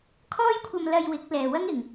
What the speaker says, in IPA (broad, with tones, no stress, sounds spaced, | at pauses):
kʰ ɔː˥ j kʷʰ ɐ˧ m l ɐ˧ j w ɪ˨˥ k̚ l ɛː˨ w ɐ˥ ŋ ɪ˨ ŋ